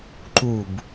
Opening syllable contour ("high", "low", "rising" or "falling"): falling